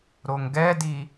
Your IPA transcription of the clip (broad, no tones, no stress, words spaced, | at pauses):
ɾoŋɡɛdi